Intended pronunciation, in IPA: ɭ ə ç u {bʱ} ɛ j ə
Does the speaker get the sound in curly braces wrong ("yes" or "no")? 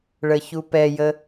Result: yes